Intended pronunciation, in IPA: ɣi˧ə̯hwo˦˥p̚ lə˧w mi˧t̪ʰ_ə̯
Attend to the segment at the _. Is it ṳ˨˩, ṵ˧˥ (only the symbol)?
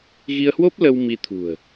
ṳ˨˩